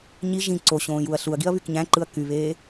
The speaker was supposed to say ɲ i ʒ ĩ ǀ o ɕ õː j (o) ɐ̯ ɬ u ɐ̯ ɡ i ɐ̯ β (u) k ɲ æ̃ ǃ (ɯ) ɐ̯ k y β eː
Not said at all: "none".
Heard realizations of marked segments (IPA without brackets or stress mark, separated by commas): u, y, ɯ